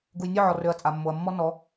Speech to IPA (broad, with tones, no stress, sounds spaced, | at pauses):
ɡ u˨ j nʲ ø˦˨ ʕ ɔ˨ r ø˨ ɐ̯ t͡sʼ a˨ mː o˨ ɐ̯ mː ɔ˦ n ɔ˨˦